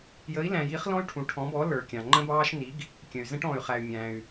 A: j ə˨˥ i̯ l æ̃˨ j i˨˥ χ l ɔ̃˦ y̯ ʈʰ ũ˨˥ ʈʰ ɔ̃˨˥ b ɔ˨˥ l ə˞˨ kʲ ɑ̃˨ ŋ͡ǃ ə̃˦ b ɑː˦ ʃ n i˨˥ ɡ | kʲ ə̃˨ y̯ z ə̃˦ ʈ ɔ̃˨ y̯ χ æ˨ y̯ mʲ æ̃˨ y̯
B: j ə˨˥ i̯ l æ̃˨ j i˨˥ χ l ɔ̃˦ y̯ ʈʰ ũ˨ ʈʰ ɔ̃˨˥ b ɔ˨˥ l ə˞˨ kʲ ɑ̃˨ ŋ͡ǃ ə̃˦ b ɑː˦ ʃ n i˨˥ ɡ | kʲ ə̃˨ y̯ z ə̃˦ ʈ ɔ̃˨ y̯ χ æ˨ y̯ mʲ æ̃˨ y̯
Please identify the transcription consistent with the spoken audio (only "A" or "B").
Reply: B